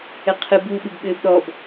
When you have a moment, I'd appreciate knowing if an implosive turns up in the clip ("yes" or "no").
yes